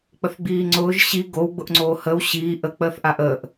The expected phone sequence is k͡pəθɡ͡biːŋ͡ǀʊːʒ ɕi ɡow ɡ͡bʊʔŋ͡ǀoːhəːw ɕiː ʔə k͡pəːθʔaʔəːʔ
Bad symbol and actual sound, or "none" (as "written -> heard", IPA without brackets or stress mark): none